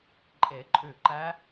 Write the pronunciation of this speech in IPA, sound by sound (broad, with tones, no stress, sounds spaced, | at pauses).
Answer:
ǃʼ e˨˩˦ ǃʼ ʉ˧˩ ǃ æ˦˥